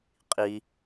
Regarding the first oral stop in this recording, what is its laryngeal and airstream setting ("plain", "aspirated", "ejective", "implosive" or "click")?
ejective